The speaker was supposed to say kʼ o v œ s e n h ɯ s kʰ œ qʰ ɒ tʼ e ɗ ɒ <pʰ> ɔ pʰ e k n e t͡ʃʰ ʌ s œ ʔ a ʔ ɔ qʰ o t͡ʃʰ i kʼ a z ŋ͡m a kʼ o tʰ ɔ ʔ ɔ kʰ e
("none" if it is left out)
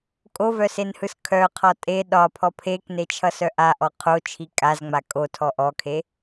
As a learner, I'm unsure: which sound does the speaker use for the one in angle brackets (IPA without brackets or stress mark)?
pʰ